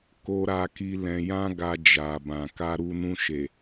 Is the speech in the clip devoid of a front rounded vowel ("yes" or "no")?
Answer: yes